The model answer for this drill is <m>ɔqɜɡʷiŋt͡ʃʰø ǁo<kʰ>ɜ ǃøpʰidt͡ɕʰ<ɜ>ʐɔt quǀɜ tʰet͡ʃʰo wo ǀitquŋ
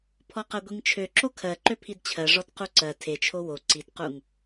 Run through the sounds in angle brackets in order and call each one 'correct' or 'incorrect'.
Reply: incorrect, correct, correct

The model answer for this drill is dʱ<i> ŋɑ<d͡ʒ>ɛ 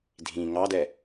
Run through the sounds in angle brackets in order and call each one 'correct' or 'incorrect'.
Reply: incorrect, incorrect

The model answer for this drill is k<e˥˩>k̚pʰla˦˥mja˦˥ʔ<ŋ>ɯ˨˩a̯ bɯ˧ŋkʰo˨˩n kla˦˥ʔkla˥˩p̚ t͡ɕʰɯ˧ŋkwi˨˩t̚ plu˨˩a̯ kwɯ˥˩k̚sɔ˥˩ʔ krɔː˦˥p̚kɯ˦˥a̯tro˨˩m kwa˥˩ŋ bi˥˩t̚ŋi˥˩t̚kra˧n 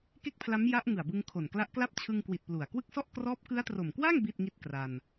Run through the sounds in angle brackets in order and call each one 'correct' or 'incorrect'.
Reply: correct, correct

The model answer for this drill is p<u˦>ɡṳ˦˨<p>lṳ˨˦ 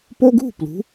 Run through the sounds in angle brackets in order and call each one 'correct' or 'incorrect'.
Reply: incorrect, correct

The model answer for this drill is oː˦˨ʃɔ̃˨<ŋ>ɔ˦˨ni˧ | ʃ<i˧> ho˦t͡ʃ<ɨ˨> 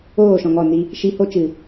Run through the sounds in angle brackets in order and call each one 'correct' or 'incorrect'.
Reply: correct, correct, correct

